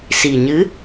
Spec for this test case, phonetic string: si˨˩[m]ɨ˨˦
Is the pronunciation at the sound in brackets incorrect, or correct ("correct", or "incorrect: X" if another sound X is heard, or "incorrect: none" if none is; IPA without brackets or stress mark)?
incorrect: ɲ